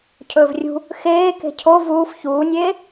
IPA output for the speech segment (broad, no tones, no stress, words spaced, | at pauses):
cʰɵːvrʲṳ | xeː ke̤cʰo vuːf çuːnʲeː